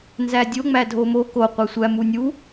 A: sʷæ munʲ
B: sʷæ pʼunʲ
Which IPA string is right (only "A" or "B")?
A